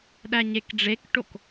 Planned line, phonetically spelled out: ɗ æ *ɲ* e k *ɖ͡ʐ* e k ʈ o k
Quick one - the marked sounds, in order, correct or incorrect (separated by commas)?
correct, correct